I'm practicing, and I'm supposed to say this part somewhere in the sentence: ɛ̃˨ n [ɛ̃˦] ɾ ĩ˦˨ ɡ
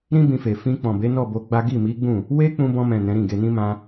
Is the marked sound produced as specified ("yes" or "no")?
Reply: no